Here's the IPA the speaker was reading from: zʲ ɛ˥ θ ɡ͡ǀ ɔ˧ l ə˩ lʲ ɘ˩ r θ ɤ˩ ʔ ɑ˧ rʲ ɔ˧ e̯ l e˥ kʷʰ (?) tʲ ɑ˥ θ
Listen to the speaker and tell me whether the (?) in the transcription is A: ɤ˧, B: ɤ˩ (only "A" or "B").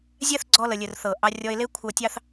A